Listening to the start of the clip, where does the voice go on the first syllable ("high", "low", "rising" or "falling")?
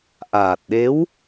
low